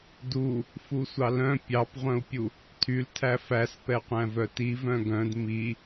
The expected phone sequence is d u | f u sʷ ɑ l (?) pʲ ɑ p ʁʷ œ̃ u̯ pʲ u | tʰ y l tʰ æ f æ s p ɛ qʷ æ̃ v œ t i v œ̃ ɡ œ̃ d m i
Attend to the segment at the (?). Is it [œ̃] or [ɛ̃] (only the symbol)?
œ̃